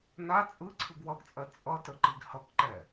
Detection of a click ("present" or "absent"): present